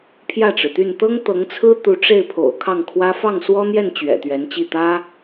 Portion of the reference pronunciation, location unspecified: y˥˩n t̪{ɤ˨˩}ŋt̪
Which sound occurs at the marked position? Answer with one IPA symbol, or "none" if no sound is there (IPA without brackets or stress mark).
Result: ɤ˥